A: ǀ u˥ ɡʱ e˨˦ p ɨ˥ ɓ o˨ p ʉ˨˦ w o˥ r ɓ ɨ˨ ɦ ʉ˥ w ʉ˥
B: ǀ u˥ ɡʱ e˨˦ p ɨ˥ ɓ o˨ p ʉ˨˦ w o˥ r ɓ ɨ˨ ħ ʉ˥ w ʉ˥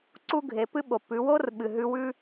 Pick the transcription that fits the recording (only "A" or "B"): A